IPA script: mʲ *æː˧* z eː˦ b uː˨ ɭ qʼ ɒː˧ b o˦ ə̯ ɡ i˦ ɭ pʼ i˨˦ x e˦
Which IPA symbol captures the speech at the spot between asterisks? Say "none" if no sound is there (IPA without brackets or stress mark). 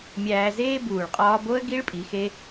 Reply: æː˧